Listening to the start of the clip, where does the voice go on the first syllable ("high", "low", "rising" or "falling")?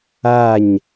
falling